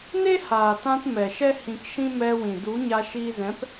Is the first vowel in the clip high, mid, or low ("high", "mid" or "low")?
mid